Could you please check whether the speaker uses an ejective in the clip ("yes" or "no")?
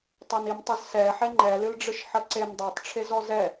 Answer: no